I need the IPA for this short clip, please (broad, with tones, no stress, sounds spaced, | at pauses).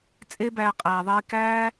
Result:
t͡sʼ e˦ b æː˧ qʼ æː˨ ðˤ iː˧ k æː˦